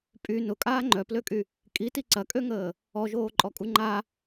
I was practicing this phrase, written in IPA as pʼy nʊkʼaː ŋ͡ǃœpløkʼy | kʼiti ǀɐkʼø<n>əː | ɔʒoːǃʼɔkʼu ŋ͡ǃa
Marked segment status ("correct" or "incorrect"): incorrect